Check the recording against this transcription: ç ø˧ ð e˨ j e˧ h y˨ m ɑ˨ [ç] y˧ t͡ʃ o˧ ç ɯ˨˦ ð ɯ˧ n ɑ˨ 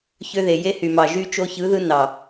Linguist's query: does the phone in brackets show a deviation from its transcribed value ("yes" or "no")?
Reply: yes